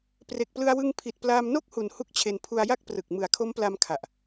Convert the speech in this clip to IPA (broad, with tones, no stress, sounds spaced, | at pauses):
p r e˨˩ k̚ p l ɯ˧ a̯ w ɯ˧ ŋ pʰ i˨˩ t̚ p l aː˧ m n o˥˩ k̚ h u˩˦ n h u˥˩ k̚ t͡ɕʰ e˧ n pʰ u˧ a̯ j a˥˩ k̚ p r ɯ˨˩ k̚ m ɯ˩˦ a̯ kʰ o˦˥ m p l a˧ m kʰ a˨˩ ʔ